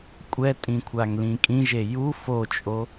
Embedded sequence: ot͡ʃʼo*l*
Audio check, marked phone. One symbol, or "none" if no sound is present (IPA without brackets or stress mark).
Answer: none